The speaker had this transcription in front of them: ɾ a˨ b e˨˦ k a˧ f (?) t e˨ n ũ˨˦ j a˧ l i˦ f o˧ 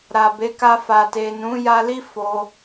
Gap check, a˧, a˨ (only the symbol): a˨